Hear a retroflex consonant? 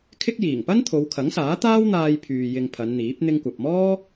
no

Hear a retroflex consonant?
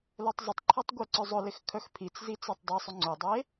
no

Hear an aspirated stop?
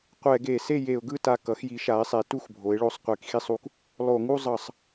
no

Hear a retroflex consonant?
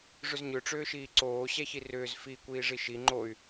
yes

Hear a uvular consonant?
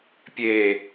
no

